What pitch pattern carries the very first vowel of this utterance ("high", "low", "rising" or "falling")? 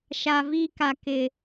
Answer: low